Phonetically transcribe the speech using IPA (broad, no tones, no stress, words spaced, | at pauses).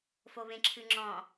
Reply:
foβẽǁʰɨŋ͡ǁɔ̃